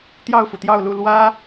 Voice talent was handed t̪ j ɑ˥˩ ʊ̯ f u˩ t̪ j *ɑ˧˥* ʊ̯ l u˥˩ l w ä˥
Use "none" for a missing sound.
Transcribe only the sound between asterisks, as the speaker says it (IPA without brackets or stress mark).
ɑ˥˧